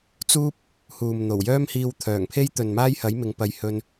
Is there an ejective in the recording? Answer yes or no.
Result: no